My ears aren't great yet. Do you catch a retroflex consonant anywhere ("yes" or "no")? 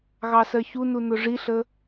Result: yes